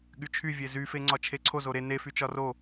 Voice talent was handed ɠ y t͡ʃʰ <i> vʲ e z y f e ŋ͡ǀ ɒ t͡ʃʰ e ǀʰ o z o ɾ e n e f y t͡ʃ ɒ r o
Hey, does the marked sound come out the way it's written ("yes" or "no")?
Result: no